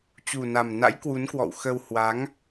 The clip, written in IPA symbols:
t͡ɕ u˨˩ n a˨˩ m n a̰˧˥ j k w u˨˦ n k w ɔ̰˧˨ w x ə˧ w h w a˨˦ ŋ

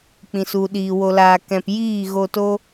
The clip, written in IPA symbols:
k͡p ĩ˨ s u˨ ɗ iː˨ w o˧ l aː˧ k ɛ̃˧ p j iː˦˨ ɣ o˧ t o˦

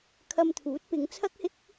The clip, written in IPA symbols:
kʰ ɐ˧ m t̪ʰ uː˨˥ t̚ p ɪ˨˧ ŋ t͡sʰ ɐ˥ k̚ h ɪ˥ k̚

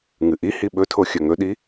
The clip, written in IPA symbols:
ŋ ɨ ʔ i h i ɓ ɵ tʰ o xʲ ɵ ŋ ɵ ɗ i

